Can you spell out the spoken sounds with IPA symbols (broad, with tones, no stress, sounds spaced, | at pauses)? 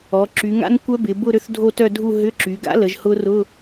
ɔ˩˧ ǁ y˩˧ ŋ a̰˦˥ n kʷ œ˦˥ b ɪ˩˧ b ʊ˥˧ ɾ ø˦˥ θ dʱ o˥˧ t œ˥˧ dʱ u˥˧ ɦ ʏ˧˥˧ ǁ y˩˧ ɡ a̰˦˥ l ə˩˧ ʒ h ʊ˦˥ r ʊ˧˥˧